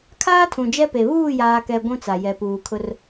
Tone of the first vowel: high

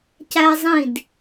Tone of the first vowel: high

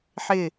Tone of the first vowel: falling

